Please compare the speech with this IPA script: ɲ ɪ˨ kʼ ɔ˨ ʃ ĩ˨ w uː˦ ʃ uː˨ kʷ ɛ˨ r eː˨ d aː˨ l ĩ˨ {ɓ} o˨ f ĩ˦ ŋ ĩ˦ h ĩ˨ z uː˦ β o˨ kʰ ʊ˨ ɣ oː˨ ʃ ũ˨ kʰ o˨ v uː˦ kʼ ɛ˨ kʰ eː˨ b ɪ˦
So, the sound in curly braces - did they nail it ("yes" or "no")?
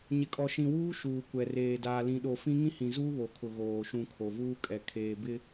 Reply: no